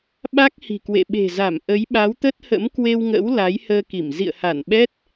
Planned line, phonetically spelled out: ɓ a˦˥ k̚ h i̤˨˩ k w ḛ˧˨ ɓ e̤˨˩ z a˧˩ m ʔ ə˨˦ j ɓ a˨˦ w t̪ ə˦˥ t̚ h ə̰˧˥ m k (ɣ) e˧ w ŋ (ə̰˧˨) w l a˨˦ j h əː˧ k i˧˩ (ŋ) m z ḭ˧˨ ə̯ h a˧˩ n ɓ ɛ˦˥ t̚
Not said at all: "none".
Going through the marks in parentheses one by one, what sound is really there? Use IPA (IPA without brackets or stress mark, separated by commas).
w, ə̰˧˥, none